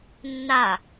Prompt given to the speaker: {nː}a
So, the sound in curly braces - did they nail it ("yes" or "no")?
yes